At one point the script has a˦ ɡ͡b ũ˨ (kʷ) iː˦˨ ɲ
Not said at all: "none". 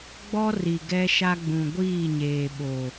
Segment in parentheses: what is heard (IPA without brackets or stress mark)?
ɡʷ